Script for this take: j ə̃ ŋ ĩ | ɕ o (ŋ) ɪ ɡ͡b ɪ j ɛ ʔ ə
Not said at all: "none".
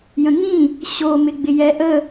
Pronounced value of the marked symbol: m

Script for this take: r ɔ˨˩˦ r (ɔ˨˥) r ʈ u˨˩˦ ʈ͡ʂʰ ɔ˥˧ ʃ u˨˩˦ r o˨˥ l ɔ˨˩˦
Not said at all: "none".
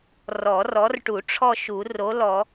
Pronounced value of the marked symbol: ɔ˨˥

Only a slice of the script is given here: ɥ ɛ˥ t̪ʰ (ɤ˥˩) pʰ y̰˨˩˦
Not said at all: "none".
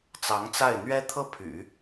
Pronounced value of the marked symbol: ɤ˥˩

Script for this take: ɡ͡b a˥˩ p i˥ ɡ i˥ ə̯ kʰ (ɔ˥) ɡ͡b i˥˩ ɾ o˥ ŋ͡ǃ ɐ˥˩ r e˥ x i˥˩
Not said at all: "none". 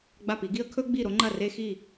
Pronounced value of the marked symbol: ɵ˥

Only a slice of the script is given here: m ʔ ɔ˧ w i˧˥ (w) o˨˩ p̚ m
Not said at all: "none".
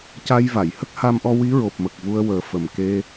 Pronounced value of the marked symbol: ɹ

